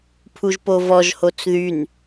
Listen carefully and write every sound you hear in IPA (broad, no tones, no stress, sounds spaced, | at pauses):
pʰ u ʒ p o v ɔ ʒ h o t͡s ð y n